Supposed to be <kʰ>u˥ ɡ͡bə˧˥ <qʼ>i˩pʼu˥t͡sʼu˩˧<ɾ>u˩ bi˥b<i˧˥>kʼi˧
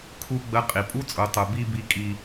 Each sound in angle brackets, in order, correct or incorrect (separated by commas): correct, correct, incorrect, correct